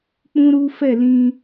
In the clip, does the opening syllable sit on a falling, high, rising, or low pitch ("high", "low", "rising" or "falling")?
high